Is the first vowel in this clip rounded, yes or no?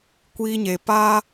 no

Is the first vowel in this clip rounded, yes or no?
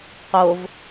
yes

